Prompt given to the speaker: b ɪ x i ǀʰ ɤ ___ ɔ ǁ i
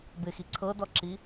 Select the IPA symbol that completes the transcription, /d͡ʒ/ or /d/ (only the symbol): d